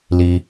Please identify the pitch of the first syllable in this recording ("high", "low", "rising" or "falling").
low